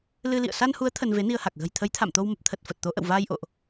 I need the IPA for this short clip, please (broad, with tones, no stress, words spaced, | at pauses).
lɨ˧lḭ˧˨ə̯ sa˧nhu˨˦ə̯ t̪ʰə˧nve˨˦ni˧ə̯ha˨˩k̚ ɣə̤˨˩j t̪ʰə˨˦jt̪ʰa̰˧˨mt̪o˧w mə˨˩p̚t̪ʰə˨˩t̚ fə˨˩t̚t̪o˨˦ ʔə̰˧˨wvaː˧jʔo̰˧˨ʔ